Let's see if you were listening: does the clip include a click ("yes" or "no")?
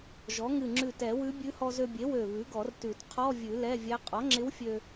yes